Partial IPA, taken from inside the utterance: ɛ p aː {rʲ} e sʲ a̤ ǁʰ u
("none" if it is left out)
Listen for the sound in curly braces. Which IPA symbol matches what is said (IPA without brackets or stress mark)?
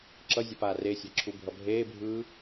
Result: r